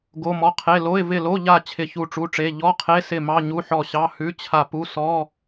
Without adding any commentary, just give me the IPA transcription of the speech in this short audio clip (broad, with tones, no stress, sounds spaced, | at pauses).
ɡ o˧˥˧ m ɔ˧˥˧ qʰ e˧˥˧ l o˧˥˧ ɪ̯ v ɪ˦˨ l o˧˥˧ ʎ a˦˨ t͡ɕʰ ɪ˦˨ ç u˦˨ ʈ͡ʂ u˧˥˧ ʈ͡ʂ e˧˥˧ ʎ ɔ˧˥˧ qʰ e˧˥˧ s ɪ˦˨ m ɑ˧˥˧ ɲ u˧˥˧ ħ ɔ˦˨ ɕ ɑ˧˥˧ h ʉ˧˥˧ t͡ɕʰ a˦˨ p u˧˥˧ s ɔ˧˥˧